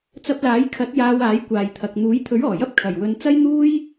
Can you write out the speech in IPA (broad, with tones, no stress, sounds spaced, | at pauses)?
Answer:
t͡s ɐ˧ p̚ l aː˨˥ j kʰ ɐ˨˥ t̚ j aː˧ w aː˨˥ j kʷ aː˨ j t̪ʰ ɐ˨ k̚ n̪ uː˨˥ j t̪ʰ ɵ˨˥ ɥ ɔː˨˩ j ɐ˥ p̚ kʰ ɐ˨˩ j w ɵ˧ n t͡s ɐ˥ j n̪ uː˥ j